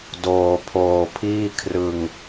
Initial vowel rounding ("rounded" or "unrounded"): rounded